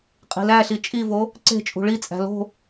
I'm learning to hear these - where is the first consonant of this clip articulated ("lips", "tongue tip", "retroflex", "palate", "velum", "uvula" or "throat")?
uvula